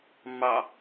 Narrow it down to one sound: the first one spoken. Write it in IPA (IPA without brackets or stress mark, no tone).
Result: mː